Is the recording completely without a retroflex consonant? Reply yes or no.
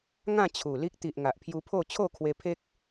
yes